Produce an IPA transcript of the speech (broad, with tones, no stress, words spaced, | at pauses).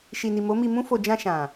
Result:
ʃi˨ni˨ mo˨˦mi˧mũ˦fo˧ d͡ʒã˧ʃã˨